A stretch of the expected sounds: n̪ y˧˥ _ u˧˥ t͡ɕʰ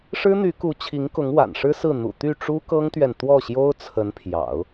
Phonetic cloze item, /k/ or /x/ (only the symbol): k